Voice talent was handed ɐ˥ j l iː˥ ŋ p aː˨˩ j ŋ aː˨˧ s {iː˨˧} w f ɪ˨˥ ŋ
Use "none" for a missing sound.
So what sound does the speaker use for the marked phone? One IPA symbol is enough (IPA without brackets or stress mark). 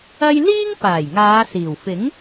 iː˨˩